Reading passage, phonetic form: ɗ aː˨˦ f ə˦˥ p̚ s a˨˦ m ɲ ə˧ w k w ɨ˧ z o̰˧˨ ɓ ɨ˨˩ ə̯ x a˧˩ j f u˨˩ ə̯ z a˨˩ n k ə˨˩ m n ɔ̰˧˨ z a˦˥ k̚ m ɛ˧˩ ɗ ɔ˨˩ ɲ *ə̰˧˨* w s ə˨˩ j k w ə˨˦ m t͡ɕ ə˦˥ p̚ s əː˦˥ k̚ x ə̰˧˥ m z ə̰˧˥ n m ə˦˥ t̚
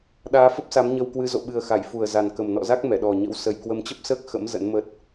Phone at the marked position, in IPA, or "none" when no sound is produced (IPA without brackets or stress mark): ə̰˧˥